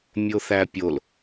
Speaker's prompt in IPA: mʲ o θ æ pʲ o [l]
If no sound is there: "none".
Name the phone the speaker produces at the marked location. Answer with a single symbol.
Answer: l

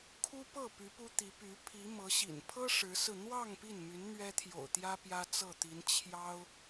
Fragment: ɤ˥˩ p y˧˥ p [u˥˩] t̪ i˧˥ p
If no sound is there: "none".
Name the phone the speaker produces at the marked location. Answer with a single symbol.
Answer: u˥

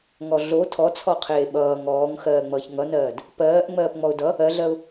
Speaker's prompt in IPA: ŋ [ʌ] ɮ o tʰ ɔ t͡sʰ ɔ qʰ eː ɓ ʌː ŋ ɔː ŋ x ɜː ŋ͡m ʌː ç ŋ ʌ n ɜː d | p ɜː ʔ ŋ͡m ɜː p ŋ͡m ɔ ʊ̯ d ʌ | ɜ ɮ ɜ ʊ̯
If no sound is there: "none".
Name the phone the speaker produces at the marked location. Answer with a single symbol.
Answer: ɔ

